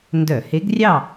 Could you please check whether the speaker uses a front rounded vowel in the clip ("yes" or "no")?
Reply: yes